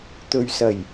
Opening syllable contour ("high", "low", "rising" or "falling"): low